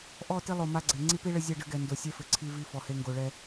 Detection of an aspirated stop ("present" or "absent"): present